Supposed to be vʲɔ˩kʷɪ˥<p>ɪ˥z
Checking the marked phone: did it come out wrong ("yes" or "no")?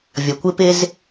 no